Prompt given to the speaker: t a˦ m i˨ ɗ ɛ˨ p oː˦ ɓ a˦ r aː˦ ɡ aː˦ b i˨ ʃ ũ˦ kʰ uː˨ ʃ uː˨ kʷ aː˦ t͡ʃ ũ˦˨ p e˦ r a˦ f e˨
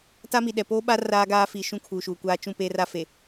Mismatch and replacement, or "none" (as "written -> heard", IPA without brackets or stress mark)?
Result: b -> f